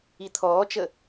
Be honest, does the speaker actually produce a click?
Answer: no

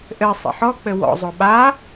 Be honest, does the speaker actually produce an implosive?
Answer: yes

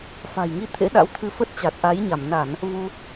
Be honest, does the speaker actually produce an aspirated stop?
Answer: yes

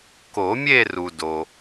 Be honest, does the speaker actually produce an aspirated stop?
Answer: no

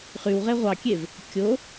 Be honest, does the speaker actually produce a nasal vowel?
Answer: no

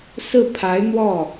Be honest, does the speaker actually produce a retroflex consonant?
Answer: no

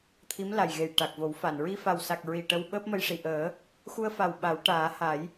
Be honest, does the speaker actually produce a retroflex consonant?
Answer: yes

